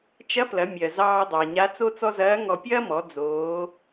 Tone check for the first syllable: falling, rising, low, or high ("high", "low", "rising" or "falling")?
rising